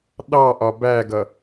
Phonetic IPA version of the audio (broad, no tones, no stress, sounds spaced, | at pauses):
ɗ ɑ ʔ ɒ b æ ɡ ʌ